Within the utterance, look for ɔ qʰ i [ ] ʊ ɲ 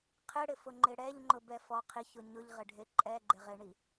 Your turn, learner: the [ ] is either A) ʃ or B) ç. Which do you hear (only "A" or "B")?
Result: B